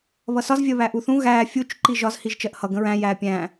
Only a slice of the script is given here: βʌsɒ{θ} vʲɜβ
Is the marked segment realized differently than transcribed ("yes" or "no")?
yes